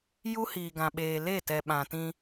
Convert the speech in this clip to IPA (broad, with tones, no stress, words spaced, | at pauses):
ju˦hiː˨ɡã˨ɓeː˨ le˦˨ tɛ˨ ɓã˨ tĩ˦